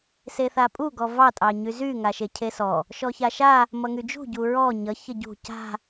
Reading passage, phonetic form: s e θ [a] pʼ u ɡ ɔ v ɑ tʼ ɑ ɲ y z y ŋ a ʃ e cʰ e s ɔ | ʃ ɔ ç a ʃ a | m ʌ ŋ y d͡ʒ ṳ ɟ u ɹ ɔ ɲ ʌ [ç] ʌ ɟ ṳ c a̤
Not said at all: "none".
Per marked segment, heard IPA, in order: a, ç

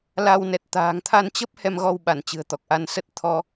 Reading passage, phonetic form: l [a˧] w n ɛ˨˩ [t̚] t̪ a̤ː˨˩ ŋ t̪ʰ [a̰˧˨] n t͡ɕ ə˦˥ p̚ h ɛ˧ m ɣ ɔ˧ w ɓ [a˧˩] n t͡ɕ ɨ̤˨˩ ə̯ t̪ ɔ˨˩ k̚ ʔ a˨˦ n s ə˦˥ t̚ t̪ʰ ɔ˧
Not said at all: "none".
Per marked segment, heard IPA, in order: a˧, t̚, a˧, a˧˩

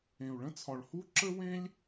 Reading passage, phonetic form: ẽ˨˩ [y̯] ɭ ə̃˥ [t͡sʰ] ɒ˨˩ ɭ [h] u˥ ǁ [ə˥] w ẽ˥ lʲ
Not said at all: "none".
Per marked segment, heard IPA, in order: u̯, t͡sʰ, h, ə˥

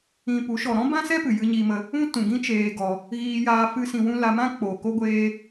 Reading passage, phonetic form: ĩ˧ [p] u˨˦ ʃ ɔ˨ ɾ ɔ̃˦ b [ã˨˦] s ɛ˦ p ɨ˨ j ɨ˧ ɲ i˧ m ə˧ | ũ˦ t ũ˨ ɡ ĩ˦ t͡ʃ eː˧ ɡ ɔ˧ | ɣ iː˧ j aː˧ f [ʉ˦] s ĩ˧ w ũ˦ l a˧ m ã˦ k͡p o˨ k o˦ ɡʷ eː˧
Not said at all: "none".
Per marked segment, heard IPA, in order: p, ã˦, ɨ˦

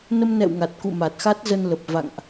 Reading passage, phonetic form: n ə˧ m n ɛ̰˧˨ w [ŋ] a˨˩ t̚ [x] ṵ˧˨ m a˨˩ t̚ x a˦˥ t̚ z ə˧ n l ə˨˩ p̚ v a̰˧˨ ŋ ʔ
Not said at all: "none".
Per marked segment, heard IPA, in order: ŋ, k

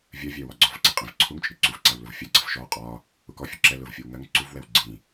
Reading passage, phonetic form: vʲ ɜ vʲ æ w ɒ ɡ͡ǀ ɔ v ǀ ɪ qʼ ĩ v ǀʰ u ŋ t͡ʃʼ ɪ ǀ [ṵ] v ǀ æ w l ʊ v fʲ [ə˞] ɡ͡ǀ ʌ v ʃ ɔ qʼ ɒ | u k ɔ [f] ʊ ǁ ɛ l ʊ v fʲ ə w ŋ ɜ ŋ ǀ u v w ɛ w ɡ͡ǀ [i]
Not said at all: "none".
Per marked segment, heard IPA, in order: u, ɜ, fʲ, ĩ

